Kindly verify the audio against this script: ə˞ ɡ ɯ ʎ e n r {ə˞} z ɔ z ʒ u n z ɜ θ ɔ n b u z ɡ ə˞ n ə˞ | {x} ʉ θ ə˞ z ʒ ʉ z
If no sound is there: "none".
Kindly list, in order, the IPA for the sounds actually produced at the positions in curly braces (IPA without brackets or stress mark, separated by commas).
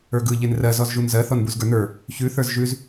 ɜ, ç